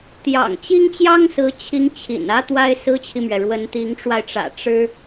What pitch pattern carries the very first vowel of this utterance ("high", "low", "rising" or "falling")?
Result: low